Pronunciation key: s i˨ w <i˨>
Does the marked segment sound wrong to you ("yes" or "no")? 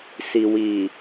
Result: no